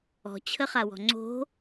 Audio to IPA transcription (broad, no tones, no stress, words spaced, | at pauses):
ɔ̤t͡ɕʰəχawɔ̤ ŋ͡ǀo̤